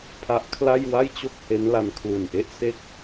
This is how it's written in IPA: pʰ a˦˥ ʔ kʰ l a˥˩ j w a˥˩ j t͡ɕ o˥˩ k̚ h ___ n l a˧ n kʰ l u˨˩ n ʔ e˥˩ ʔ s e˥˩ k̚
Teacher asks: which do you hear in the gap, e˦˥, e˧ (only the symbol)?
e˦˥